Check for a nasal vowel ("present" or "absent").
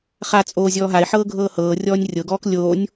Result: absent